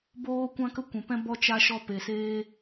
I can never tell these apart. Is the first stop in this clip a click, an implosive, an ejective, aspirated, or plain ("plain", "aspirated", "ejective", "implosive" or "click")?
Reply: plain